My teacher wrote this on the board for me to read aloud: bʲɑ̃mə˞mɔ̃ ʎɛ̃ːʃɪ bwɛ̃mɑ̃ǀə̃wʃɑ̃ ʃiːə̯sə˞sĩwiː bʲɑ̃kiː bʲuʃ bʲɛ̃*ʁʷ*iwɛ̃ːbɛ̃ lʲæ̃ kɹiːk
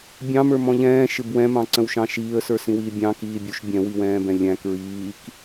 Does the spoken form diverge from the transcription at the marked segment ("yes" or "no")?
yes